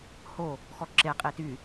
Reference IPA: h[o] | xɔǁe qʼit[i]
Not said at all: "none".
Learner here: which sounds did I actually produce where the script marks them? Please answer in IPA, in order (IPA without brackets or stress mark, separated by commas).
o, y